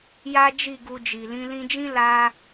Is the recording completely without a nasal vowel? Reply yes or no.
no